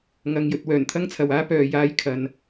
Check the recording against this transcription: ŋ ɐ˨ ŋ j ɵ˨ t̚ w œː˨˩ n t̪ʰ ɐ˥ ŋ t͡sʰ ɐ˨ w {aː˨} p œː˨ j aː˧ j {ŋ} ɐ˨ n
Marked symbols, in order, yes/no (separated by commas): no, no